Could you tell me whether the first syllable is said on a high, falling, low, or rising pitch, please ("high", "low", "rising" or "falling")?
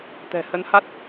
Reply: low